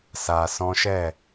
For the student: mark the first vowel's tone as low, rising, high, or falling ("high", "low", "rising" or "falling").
low